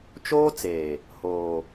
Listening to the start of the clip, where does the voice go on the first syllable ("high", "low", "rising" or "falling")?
high